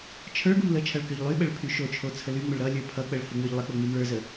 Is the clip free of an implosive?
no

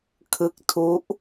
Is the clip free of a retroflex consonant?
yes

